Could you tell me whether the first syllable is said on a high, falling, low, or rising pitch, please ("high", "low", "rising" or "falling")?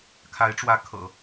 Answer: rising